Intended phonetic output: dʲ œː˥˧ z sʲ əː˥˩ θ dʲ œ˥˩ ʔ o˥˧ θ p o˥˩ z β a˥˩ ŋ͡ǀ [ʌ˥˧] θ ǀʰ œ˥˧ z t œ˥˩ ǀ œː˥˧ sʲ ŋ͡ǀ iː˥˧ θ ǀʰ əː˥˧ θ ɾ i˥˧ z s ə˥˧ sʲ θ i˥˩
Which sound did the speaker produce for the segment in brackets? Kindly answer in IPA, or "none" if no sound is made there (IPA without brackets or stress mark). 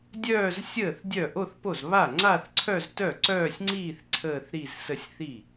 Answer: a˥˧